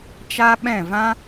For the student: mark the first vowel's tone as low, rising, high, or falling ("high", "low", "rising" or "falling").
high